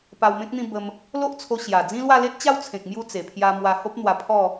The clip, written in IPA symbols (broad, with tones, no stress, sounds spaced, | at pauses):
p a˧ w m ẽ˦ k̚ n̪ ĩ˥˧ b ə˦ m | l o˦ ʔ t͡sʰ o˧ ɕ j a˨˩ d͡z ĩ˦ l w a˥˧ l e˦ t̚ t͡ɕ a˥˧ w t͡sʰ ẽ˨ k̚ m j u˧ t͡s e˨˩ pʰ j a˧ m w a˧ h o˦ p̚ n̪ w a˧ pʰ ɔ˥˧